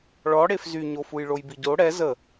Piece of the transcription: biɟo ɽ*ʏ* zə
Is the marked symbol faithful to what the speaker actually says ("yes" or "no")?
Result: no